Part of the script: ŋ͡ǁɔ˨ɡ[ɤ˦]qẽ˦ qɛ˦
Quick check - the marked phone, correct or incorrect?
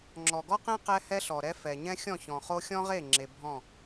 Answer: incorrect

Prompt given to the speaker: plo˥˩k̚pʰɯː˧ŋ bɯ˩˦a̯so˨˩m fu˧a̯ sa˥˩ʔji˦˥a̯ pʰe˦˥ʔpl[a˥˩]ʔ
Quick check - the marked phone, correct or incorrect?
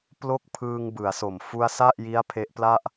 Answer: correct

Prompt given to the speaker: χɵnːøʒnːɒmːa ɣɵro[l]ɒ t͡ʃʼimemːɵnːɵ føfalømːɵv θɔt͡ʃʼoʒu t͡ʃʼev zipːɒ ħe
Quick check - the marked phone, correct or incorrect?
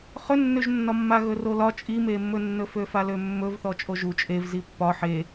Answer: correct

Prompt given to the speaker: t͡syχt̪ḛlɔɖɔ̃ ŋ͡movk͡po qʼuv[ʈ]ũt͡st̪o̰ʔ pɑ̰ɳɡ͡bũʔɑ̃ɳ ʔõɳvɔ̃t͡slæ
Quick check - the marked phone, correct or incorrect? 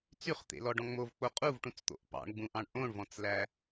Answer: correct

